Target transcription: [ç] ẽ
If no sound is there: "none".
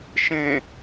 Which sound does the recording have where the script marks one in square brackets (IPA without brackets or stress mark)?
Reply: ʃ